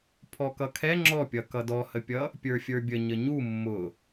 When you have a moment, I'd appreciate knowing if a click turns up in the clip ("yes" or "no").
yes